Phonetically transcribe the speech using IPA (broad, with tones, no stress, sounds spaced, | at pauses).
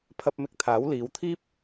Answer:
pʰ ɐ˧ p̚ m ɪ˧ k̚ t̪ʰ aː˨˥ w l iː˨˧ w t̪ʰ iː˥ p̚